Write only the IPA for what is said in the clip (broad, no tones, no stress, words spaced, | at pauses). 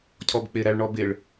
cʰɔbk͡pɪ ɾæɭɳɔbɪɭ